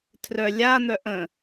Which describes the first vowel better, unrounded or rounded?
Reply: rounded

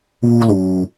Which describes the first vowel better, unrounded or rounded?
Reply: rounded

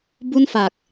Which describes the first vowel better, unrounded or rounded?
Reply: rounded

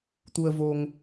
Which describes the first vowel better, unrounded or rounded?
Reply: rounded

